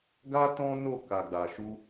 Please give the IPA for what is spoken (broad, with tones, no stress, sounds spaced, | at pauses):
ɡ a˦ t ɔ̃˦ n o˦˨ k a˨ ɡ͡b a˨ ʃ u˧